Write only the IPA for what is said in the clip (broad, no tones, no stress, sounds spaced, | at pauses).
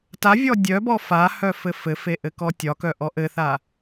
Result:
t a vʲ ɔ dʲ œ b ɔ f a h œ f ɘ f ɘ f e ʔ ɘ k ɔ tʲ ɒ k œ ʔ ɔ ʔ ɘ θ a